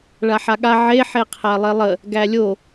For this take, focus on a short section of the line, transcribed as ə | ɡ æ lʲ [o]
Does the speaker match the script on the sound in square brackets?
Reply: yes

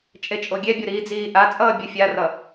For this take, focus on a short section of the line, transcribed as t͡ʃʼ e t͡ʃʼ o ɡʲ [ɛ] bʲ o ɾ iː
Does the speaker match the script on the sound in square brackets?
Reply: yes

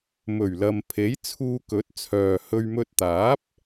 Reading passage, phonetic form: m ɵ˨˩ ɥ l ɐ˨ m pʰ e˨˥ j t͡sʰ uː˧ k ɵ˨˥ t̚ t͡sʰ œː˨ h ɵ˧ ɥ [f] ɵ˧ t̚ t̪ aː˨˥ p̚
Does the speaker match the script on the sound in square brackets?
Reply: no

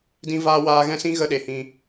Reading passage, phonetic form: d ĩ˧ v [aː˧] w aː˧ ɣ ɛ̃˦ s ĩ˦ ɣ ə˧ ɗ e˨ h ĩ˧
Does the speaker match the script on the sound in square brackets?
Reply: yes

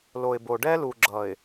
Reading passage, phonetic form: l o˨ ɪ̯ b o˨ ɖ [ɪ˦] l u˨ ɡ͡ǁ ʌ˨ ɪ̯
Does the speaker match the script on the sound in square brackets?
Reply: no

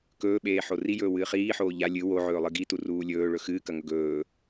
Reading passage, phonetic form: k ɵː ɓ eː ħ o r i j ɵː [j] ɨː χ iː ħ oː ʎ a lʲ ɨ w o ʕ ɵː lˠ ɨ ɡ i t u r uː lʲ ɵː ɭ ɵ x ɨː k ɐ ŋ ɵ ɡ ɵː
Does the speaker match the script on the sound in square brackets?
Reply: no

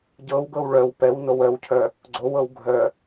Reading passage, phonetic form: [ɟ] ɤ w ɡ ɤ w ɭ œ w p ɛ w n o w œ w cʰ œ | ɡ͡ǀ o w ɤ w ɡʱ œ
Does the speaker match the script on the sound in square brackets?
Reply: yes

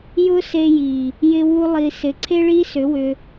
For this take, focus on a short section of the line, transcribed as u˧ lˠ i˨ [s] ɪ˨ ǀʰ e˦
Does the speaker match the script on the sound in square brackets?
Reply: yes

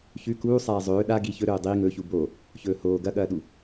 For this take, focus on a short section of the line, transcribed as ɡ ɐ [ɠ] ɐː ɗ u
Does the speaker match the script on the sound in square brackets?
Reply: yes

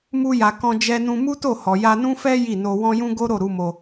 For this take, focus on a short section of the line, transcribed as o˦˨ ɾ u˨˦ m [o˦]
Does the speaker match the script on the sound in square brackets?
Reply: no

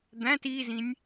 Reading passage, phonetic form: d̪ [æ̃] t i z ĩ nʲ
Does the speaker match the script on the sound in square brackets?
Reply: yes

